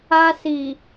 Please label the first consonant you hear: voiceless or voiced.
voiceless